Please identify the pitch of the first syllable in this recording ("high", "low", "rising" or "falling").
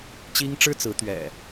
high